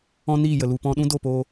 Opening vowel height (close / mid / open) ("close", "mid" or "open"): mid